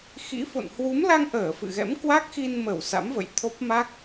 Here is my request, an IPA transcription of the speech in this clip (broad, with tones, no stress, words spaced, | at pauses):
xḭ˧˥fo̰˧˨n hwu˨˦mla˧ŋʔəː˧˩ fɨ̰˧˨ɣɛ̰˧˥mkwa˦˥k̚ xi˧nmə˧˩w sa̰˧˥mvə̰˧˨j t̪ʰo˦˥p̚ma˦˥k̚